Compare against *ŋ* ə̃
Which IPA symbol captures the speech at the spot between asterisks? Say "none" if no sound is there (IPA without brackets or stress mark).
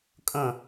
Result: kʼ